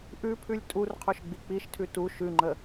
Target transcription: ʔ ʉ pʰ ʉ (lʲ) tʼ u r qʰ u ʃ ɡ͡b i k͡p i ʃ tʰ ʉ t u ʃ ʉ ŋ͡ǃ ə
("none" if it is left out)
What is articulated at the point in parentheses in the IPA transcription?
lʲ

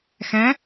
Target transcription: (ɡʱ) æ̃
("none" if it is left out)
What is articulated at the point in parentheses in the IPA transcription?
x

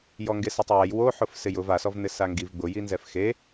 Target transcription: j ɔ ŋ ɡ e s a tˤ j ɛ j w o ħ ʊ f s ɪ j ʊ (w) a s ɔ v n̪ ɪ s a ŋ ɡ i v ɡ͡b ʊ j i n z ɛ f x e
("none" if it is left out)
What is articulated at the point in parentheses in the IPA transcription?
v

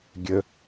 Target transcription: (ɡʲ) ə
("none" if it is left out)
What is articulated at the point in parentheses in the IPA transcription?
ɡʲ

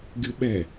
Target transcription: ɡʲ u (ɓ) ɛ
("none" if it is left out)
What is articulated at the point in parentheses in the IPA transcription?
ɓ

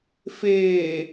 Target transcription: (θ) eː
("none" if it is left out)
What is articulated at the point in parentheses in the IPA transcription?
f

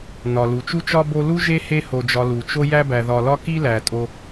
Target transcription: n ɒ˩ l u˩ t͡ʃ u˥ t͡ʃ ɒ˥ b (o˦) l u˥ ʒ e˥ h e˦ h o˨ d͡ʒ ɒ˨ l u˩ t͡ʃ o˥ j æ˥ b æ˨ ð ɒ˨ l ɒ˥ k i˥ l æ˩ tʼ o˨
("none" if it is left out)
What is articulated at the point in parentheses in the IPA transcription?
o˦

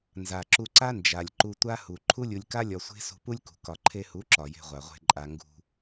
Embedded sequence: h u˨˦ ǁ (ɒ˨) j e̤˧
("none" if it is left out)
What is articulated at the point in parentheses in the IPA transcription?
ɒ˨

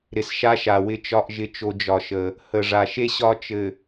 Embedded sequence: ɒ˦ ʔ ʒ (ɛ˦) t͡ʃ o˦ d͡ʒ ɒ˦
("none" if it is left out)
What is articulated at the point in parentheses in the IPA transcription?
ɪ˦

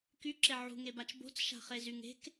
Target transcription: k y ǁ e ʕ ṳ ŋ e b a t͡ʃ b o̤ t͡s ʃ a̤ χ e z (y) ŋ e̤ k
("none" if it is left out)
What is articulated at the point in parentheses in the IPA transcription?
y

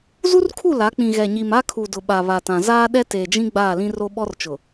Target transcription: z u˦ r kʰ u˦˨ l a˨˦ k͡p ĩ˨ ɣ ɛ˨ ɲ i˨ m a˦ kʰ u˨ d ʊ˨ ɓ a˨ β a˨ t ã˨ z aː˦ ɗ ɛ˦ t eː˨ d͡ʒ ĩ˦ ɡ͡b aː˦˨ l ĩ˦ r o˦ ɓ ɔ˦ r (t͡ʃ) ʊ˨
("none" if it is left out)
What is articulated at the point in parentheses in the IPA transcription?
t͡ʃ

